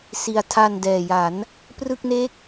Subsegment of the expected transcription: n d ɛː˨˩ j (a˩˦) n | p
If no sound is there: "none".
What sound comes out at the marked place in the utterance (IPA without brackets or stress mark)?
a˩˦